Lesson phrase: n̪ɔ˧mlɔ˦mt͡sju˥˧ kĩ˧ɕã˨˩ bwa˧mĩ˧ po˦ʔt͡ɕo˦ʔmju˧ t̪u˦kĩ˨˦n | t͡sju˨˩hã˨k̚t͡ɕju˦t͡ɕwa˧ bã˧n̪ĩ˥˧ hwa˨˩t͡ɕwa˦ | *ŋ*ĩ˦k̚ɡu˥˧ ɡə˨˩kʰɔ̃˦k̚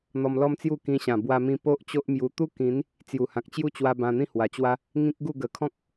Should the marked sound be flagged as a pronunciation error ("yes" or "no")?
no